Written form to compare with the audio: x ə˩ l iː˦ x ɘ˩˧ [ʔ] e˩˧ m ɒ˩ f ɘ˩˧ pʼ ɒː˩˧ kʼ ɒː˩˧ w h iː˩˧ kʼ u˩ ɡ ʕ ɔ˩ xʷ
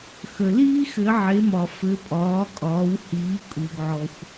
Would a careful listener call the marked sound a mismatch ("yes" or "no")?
yes